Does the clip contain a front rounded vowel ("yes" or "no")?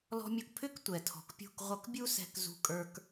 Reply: yes